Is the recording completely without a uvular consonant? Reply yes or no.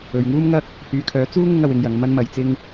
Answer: yes